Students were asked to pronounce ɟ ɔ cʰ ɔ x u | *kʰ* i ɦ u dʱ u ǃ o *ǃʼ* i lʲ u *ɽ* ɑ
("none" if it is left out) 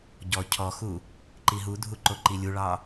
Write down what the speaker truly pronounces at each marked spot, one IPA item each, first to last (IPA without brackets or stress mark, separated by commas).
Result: ǃ, ǃ, ɭ